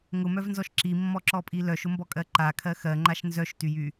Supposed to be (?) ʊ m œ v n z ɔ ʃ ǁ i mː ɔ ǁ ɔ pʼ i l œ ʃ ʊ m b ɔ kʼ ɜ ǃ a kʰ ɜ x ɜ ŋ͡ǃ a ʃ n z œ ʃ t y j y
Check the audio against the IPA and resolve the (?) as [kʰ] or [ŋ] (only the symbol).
ŋ